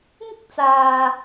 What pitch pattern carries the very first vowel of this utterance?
high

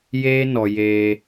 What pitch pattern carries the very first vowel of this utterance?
high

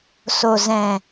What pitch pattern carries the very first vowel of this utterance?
low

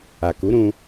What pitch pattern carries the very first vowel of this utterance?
low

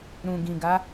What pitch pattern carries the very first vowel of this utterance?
low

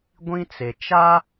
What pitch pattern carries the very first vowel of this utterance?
high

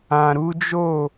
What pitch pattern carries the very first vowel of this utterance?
low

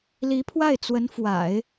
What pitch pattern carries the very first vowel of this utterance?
rising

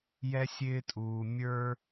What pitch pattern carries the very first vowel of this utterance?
high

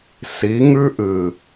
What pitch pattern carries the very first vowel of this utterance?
rising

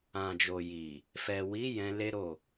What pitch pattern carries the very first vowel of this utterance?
low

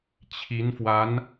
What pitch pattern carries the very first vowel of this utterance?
rising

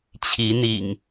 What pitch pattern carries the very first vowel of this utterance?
rising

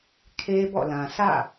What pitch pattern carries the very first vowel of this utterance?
high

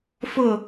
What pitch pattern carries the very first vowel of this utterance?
falling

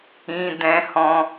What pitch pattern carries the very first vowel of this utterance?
high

